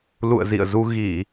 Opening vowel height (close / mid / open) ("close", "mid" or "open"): close